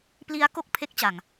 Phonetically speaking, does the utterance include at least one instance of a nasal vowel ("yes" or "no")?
no